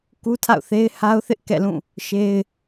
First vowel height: high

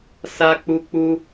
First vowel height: low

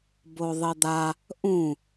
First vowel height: mid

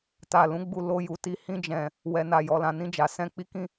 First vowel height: low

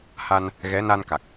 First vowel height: low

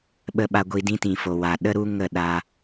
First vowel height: mid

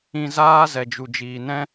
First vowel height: high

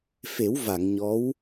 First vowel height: mid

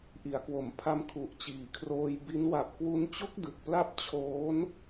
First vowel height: high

